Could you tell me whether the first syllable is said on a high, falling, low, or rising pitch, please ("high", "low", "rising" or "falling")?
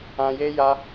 high